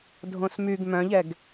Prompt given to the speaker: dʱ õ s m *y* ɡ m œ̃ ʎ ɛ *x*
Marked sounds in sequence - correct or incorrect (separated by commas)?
correct, incorrect